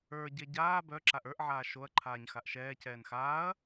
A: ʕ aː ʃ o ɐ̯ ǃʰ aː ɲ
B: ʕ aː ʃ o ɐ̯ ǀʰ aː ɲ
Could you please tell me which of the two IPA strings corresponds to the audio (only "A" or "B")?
A